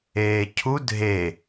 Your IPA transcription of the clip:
eːcʰu dʱe

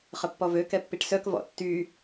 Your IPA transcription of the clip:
χəpːɔvø kɛpːiʈsœk vɔ̰tːy

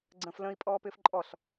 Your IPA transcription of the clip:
ɡ͡ǀə̃ːflə̃i̯ pʼɔːpɪːfǃʼɔɬ

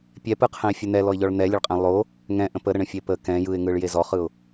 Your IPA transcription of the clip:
pʲɛpɯqʰɛ̃ɪ̯fʲə n̪ɛlɔɪ̯ʎɔɭ n̪ɛlʲəɭqʼɛ̃ lˠo | ŋɛ̃ʔə̃ pəɾəɳə̃fʲe pə kɛ̃ jɯɪ̯ŋɯɭje zɔχɯʊ̯

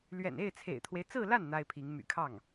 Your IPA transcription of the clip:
lɥɛ̰˨˩ne˥˩ɪ̯t͡sʰḛ˨˩ɪ̯t̪ʰwe˦ɪ̯ t͡sɹ̩˥˧la˥˩n n̪a˥ɪ̯pʰi˧˥ŋ my̰˨˩kʰɑ˥˩ŋ

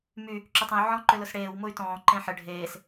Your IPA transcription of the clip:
my | ǁʏtˤə̃y̯ ʕɔ̃ ǃʏlʊsɽeːw mʊy̯tɔ̃ː ǃẽħə ɖʱeːs

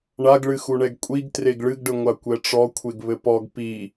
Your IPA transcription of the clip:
ɳaɡɭɨ xuɳɛɡkʷʼiɡ treɡɭɨɡɖɘ ŋʷakʷɛʈ͡ʂɔkʷʰeɡ βɘpɔɡ pi

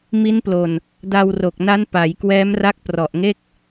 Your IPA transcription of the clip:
mi˦˥nplo˨˩n | da˧wro˨˩k̚na˦˥n pa˩˦jkwɛː˦˥mra˦˥k̚ prɔ˨˩ʔŋe˥˩k̚

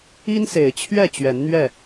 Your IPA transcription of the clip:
i˦nse˨˩ɪ̯t͡ɕʰɥɛ˥˨ t͡ɕɥɛ˨˦nn̪ɥɛ˥˨

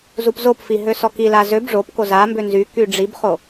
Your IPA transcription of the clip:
zupzopfi ɦøsɔkila zøb ʐopko za mbønzyky ɖ͡ʐibχo

